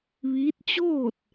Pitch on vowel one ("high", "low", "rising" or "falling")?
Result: rising